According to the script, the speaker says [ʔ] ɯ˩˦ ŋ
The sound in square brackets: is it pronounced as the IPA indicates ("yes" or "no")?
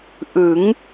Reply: yes